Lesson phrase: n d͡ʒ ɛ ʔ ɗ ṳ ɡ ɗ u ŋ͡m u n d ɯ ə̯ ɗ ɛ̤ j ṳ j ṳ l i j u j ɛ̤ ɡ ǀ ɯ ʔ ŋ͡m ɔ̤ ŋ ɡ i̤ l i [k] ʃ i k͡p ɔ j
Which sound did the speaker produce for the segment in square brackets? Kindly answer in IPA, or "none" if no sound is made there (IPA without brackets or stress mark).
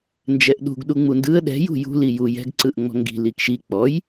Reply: k